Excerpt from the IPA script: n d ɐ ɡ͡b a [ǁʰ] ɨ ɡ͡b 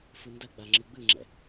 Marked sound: incorrect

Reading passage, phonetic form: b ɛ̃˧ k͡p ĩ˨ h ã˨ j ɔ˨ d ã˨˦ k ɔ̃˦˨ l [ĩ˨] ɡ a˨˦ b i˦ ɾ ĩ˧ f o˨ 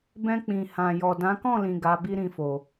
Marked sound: correct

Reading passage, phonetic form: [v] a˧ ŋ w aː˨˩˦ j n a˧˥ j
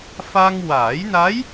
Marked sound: incorrect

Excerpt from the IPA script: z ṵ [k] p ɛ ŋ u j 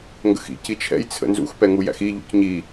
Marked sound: incorrect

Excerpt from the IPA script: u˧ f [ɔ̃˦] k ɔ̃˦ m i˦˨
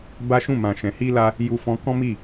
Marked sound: incorrect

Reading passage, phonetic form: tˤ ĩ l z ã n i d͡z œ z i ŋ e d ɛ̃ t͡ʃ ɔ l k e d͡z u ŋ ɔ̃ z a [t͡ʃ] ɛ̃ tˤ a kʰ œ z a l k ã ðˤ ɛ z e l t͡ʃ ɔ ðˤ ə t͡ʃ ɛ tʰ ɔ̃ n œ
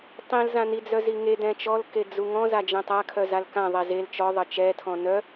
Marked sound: incorrect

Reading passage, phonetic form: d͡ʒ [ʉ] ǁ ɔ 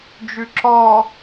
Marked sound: correct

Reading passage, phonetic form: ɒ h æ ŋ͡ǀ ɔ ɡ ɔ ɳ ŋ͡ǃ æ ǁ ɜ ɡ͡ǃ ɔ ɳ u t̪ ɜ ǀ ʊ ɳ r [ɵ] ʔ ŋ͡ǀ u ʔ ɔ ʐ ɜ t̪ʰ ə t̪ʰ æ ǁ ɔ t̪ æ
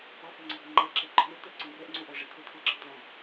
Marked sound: incorrect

